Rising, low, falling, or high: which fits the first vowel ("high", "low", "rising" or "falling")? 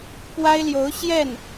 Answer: high